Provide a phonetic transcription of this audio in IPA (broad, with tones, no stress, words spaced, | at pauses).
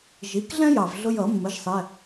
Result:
ʒi˩˥kɮɛ̃˦jɑ˩v ɮʊ˦jʌ˨˩˦mːə˩˥ʒsˤɛ˩˧˩